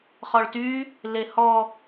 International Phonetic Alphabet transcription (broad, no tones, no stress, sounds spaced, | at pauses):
χ ɔ ɭ t y | l e h ɔ